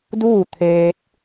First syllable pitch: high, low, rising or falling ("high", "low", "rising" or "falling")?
falling